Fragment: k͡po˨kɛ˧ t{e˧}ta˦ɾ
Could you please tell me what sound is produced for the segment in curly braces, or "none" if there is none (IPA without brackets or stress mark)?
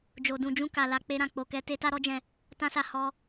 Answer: e˦